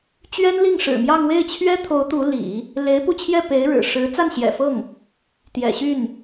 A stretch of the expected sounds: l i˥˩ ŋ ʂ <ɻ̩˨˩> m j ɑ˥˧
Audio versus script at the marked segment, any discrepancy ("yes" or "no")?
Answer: no